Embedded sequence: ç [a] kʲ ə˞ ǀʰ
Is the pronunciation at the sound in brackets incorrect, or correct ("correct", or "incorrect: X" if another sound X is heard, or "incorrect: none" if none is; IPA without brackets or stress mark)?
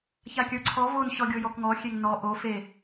correct